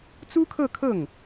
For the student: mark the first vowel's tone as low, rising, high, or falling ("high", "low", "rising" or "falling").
high